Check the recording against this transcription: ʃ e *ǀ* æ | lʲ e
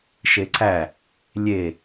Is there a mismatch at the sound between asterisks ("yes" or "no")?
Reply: no